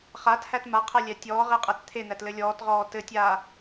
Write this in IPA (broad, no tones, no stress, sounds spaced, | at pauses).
χ a t h æ t m a qʰ æ lʲ æ tʲ ɔː ʁ e qʼ æ t t̪ʰ e n̪ æ t l ɘ lʲ ɔː t ʁ ɔː t ɘ tʲ aː